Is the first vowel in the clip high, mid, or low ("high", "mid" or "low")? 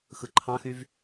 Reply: high